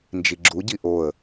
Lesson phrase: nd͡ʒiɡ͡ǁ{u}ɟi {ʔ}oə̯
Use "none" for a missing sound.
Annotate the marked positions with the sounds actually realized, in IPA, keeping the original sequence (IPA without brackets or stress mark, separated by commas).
u, ʔ